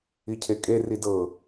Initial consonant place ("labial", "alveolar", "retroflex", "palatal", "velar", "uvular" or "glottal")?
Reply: palatal